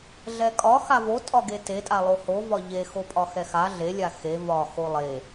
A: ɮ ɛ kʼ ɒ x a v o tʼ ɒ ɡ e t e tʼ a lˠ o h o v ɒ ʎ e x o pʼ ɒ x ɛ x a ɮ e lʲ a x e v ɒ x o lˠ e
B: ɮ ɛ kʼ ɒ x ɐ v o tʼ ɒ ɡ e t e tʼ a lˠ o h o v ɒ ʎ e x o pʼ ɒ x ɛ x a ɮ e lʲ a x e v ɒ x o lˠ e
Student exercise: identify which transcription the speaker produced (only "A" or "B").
A